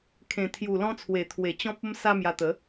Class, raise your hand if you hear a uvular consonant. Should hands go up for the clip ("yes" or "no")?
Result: no